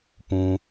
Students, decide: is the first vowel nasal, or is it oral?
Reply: nasal